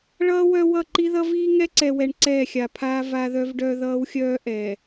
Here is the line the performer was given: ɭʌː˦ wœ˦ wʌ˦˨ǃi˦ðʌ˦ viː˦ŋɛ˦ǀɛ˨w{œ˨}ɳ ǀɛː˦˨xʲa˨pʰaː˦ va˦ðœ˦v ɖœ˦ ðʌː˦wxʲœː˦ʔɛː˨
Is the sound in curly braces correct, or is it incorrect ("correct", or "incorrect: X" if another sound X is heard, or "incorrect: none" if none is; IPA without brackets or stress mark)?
incorrect: ɛ˨